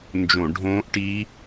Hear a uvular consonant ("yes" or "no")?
no